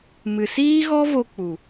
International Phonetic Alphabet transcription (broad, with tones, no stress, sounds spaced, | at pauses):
m ɨ˨ s iː˦ ɣ ɔ˦ v o˧ k͡p u˨